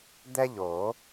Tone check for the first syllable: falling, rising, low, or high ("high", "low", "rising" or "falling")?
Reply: high